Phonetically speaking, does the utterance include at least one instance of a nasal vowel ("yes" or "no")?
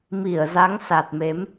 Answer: no